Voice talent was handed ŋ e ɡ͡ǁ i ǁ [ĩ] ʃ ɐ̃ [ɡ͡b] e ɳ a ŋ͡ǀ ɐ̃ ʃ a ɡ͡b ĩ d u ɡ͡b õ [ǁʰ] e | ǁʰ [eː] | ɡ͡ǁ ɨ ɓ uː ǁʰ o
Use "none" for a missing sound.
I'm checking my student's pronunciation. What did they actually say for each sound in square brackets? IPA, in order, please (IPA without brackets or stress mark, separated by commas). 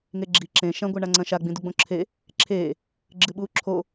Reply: ẽ, ɡʷ, ǁʰ, eː